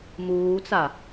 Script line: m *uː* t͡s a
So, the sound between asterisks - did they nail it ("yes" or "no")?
yes